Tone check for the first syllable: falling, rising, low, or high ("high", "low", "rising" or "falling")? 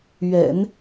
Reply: low